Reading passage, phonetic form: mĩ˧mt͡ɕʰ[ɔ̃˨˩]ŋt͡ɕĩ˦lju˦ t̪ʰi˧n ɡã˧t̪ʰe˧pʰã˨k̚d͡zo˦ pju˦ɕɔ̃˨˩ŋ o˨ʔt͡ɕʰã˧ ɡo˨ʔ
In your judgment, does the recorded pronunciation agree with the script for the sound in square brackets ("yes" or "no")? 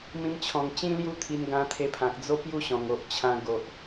yes